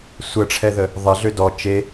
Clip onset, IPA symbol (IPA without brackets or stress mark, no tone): sʷ